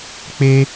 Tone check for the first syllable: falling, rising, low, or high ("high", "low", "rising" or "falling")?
high